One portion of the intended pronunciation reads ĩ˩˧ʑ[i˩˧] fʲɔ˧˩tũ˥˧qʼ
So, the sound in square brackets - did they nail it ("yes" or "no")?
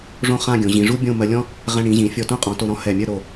no